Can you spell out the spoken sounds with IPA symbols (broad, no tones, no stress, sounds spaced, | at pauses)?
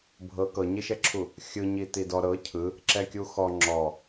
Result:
bʱ ɤ k ɤ ɲ i ʃ ɛ ǁʰ u | xʲ ɯ ɲ i t i d ɔ ɾ ɤ cʰ ɯ | ǁ ɛ kʲ u x ɔ ŋ͡ǁ ɔ